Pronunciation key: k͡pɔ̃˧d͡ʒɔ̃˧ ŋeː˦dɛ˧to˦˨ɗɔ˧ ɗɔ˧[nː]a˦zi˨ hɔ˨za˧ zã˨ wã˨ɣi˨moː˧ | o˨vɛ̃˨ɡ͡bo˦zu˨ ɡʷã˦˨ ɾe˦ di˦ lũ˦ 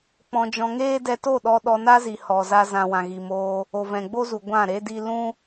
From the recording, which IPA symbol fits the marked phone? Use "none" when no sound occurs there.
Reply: n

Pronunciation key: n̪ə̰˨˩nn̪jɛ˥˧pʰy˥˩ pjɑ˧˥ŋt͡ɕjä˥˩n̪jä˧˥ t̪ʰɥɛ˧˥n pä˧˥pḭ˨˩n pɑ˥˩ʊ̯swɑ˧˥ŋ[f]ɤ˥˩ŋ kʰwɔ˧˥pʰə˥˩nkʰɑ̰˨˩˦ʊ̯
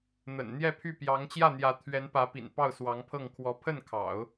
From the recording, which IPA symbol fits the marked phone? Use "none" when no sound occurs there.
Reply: pʰ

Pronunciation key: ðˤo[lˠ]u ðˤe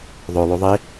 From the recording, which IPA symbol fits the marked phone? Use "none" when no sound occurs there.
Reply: lˠ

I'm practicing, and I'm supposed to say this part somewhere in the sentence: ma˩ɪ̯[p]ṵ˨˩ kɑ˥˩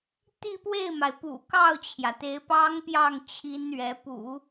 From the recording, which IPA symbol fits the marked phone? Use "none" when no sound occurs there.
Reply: p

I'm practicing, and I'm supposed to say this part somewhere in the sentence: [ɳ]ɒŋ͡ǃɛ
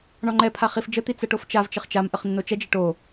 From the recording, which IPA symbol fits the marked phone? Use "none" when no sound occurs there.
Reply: ɳ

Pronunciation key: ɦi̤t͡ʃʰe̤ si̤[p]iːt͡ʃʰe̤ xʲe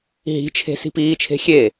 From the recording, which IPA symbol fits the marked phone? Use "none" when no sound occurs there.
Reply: p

